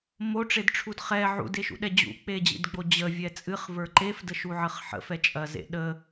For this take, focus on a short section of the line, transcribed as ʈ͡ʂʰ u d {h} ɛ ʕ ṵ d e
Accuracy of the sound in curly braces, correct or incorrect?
incorrect